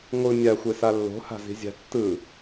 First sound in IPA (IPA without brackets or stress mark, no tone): ŋʷ